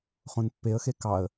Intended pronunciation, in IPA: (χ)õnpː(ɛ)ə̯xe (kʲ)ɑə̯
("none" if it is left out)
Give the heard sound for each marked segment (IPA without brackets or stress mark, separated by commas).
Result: χ, e, k